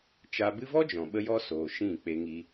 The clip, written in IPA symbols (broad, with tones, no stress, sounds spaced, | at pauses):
t͡ʃ a˧ b ɨ˦ v ɔ˦ d͡ʒ ɔ̃˨ ɓ ə˧ j ɔ˧ s oː˨ ʃ ĩ˦˨ k͡p e˧ ŋ i˧